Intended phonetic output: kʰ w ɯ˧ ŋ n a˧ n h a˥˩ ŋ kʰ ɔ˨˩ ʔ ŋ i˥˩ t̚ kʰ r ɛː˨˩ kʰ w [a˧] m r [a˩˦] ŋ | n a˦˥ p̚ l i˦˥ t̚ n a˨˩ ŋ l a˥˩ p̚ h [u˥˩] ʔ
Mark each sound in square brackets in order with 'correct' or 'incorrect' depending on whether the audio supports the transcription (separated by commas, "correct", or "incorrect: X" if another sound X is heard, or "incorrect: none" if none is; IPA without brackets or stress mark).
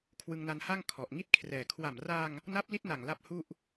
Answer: incorrect: a˨˩, incorrect: a˧, correct